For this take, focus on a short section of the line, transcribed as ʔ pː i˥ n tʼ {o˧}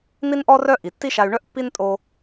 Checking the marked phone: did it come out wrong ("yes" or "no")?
no